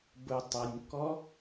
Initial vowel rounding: rounded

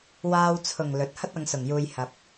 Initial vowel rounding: unrounded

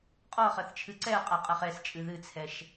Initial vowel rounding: rounded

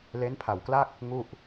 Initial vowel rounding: unrounded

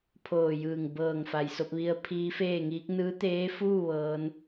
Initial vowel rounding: rounded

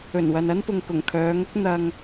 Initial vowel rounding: rounded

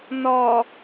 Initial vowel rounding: rounded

